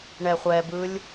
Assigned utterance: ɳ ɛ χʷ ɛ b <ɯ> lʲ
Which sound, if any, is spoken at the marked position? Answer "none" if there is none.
ɯ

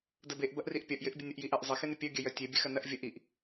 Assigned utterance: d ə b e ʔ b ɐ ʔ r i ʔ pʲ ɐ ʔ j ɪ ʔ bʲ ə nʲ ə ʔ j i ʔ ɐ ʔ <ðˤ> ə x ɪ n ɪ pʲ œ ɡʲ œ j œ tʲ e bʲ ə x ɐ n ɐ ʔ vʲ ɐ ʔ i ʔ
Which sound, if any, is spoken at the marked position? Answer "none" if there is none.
zˤ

